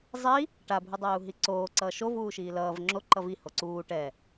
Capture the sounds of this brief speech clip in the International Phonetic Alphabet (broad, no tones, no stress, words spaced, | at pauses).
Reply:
zˤi | ʈabʱu dˤɛːu̯ɦiǀoː ǀʌːʃo vuːʃiːlʌːv ŋ͡ǁo ǃʌvi hoǀuː ʈɛ